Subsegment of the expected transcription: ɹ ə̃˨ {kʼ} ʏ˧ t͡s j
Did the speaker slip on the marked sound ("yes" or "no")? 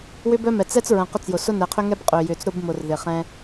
yes